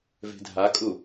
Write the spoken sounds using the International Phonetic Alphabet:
ve̤dʱakʼu

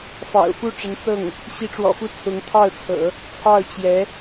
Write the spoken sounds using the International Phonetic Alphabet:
fɑ̰˨˩ʊ̯fu˥˩ ʈ͡ʂə˧˥nt͡sɤ˥˩ŋ | ɕi˧˥ʈ͡ʂwɔ̰˨˩fu˥˩t͡sʰʊ˧˥ŋ t̪ʰɑ˥˩ʊ̯ t͡sʰɤ̰˨˩˦ | t͡sʰɑ˥˩ʊ̯ t͡ɕjɛ˧˥

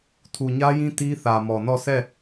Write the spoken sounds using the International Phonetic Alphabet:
tʰu˨ɲä˦jĩ˦ ti˦θä˨mɔ˨nɔ˦˨ sɛ˦˨

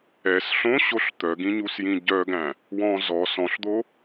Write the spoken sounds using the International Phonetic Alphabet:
ɛs ɬõɕoɬ t̪œɡĩɲusjĩ ɟœɡæ̃ | wɔ̃ zɔ sɔ̃ɬd̪o

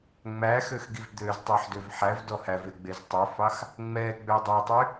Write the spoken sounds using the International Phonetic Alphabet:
ŋ͡mæxøxɡiv d̪øztˤœħdøv ħævdɔ hæveɡ͡bez tˤøfɑx | ŋ͡mɛɡ͡bø dˤɛtˤy

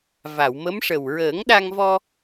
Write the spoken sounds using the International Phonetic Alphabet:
va˨˩˨wmə˧˥mʂə˨˩w ɹəː˨˩˦ŋɗa˧ŋ vɔ˧

